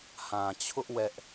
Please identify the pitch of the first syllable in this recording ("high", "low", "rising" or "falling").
low